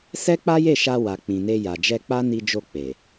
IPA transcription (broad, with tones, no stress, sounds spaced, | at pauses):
s ɛ˦ k͡p a˦ j e˦˨ ʃ a˧ w a˨ k͡p ĩ˨ n e˧ j a˨ d͡ʒ ɛ˧ k͡p a˦ n i˧ d͡ʒ o˧ k͡p e˨